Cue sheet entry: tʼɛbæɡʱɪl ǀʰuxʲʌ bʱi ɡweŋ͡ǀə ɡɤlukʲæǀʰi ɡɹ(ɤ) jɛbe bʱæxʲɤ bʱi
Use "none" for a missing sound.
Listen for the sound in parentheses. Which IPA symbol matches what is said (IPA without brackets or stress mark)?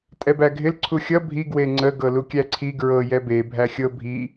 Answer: ɤ